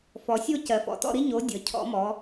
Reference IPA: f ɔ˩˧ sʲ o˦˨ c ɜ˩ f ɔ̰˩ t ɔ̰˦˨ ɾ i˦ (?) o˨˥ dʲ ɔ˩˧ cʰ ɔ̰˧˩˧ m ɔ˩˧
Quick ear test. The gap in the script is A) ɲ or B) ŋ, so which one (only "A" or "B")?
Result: A